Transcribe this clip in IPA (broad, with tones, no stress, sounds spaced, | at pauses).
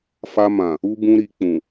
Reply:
f a˧ m ã˨ | u˧ b ũ˧ ɾ i˨ k͡p ũ˨